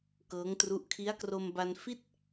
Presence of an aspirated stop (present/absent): present